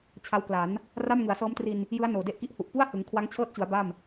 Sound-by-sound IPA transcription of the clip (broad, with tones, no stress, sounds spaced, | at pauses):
t͡ɕʰ a˦˥ w k l a˩˦ n | r a˥˩ m ŋ ɯ˩˦ a̯ s ɤː˦˥ m t r i˧ n | j ɯ˦˥ a̯ n oː˨˩ d e˥˩ ʔ k i˥˩ ʔ h u˨˩ ʔ p u˥˩ a̯ h ɯ˩˦ ŋ kʰ w a˦˥ ŋ t͡ɕʰ ɤː˥˩ t̚ t͡ɕ u˩˦ a̯ b a˥˩ m